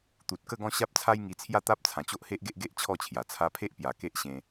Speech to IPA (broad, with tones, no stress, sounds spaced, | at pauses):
t̪ u˨ t̚ k ə˥˧ ɡ ɔ̃˥˧ ɕ a˦ p̚ t͡sʰ a˦ j ŋ i˧ t͡sʰ j a˥˧ t̪ a˦ p̚ t͡sʰ ã˨˩ t͡ɕ o˦ ʔ h e˦ ʔ ɡ e˦ ʔ ɡ e˦ ʔ t͡ɕʰ ɔ˥˧ t͡ɕʰ j a˨˩ t͡sʰ a˧ pʰ e˦ ʔ p j a˨˩ k e˦ ʔ ɕ ẽ˧